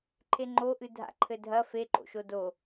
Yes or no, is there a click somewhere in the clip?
yes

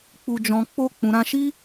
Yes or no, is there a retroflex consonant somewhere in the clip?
no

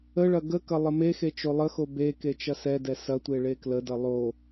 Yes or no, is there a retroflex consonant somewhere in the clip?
yes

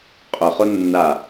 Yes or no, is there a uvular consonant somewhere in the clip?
yes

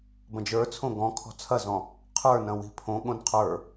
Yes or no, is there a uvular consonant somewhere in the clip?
yes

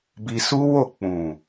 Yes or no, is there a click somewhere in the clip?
no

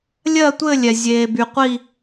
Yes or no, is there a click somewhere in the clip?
no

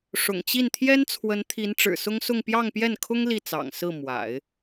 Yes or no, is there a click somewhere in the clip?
no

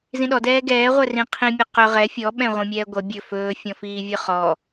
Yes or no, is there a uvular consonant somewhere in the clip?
yes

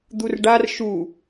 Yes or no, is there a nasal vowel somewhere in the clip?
no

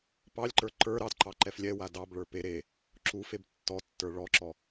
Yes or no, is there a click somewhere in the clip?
yes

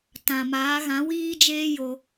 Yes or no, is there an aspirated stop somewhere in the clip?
no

